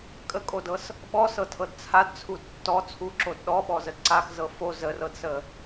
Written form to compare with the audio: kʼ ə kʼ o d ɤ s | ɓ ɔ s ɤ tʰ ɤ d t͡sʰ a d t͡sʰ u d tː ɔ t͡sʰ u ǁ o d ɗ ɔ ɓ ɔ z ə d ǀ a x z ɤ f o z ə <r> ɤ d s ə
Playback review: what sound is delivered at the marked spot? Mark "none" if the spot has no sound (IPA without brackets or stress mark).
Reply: r